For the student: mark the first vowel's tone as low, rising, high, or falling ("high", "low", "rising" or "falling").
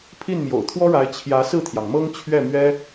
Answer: falling